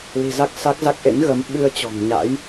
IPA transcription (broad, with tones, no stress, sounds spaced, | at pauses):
l i̤˨˩ z a˦˥ k̚ s a˦˥ k̚ z a˦˥ k̚ ʔ ḛ˧˥ n ɣ ə˨˦ m ɓ ɨ˧ ə̯ t͡ɕ ɔ̤˨˩ ŋ ɲ a̰˧˥ j